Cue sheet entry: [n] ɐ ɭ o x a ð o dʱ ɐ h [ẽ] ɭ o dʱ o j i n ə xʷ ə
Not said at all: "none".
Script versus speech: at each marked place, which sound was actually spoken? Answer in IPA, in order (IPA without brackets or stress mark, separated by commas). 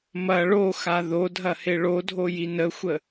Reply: m, e